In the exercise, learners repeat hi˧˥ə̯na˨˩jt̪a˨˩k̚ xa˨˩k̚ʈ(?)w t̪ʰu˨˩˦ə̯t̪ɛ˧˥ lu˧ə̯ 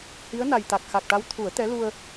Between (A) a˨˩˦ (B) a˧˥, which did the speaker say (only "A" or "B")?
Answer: B